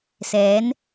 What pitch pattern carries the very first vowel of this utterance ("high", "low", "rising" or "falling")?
rising